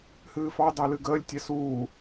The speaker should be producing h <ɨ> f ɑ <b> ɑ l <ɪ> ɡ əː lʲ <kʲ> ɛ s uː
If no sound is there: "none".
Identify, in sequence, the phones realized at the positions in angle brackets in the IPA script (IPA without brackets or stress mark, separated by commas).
ɨː, d, ɨ, tʲ